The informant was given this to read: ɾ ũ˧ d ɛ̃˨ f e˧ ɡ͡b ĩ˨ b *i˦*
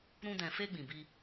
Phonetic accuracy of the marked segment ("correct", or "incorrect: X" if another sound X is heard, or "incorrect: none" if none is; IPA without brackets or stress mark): incorrect: i˧